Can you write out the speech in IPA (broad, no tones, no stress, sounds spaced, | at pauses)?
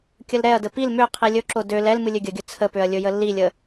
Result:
kʲ ə l ɾ ɛ ɐ̯ d ə p i l m ø qʰ i lʲ ɵ ǁ o d ø l ɛ l m ɨ lʲ ø ɡʲ ə ɡʲ ɵ t͡sʰ ə p ø ɐ̯ lʲ ɵ j ə lː i lʲ ə